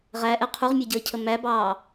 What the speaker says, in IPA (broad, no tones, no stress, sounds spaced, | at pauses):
ʁ æ ʔ ɛ qʰ u ʁ mʲ ɛ ɟ əː cʰ ə m æ b ɑː